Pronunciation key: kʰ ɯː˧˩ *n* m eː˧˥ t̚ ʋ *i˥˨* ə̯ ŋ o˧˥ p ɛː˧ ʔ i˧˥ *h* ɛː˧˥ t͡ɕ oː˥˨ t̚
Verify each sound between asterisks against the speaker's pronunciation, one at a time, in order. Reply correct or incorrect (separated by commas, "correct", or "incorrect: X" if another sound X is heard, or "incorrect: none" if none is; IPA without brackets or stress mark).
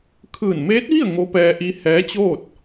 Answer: correct, correct, correct